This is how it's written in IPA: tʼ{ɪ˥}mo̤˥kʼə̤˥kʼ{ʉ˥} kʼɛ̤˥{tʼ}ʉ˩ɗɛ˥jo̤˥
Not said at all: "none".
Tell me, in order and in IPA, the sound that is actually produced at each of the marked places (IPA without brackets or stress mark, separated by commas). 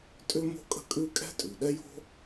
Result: ʏ˥, ʉ˥, tʼ